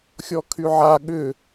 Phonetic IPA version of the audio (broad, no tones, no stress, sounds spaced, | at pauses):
xʲ ɔ kʰ y ʕ a ɠ ʏ